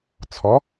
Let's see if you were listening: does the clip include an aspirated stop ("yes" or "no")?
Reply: yes